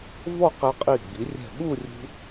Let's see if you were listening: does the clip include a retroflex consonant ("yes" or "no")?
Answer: no